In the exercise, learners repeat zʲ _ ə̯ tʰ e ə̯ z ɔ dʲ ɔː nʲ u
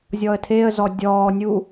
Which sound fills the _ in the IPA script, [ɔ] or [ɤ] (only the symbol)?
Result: ɔ